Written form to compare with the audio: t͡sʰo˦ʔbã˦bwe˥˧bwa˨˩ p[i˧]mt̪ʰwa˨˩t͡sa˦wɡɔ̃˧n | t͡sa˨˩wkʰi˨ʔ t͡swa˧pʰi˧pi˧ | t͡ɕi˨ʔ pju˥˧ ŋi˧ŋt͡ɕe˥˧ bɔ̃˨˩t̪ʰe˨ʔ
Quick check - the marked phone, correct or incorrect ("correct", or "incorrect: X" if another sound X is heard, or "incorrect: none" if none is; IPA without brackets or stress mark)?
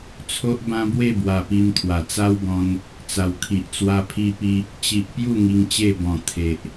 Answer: correct